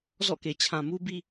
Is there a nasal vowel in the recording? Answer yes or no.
yes